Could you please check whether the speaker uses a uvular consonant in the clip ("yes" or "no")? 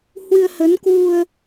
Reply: no